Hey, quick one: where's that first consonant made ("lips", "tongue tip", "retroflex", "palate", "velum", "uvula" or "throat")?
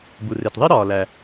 lips